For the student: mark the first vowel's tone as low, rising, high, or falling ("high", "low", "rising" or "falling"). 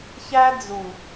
high